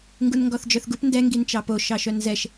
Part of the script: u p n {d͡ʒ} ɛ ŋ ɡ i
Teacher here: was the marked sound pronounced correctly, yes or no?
no